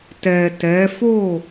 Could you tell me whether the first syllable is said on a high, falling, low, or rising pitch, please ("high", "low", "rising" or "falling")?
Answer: low